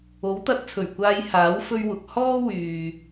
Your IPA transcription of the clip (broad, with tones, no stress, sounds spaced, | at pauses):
o˨˥ w t̪ ɐ˧ t̚ t͡sʰ ɵ˨˩ ɥ kʷ aː˧ j h aː˨˥ w f ɵ˥ ɥ w ʊ˨ k̚ h ɔː˥ w yː˨